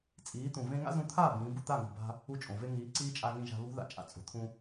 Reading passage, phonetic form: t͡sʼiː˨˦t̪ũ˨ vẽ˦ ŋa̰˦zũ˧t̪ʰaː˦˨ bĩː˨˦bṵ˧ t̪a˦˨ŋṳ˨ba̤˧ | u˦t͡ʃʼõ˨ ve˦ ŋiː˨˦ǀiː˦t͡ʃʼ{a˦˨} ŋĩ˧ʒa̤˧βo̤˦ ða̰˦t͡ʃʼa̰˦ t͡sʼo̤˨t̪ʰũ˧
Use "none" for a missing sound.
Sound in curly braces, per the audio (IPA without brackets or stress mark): a˧